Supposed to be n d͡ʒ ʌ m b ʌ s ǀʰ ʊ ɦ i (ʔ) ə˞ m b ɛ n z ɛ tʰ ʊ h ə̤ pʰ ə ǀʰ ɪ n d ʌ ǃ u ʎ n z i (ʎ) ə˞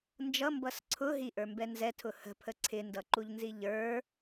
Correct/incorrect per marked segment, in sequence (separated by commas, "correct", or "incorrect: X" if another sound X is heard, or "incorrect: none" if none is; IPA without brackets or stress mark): correct, correct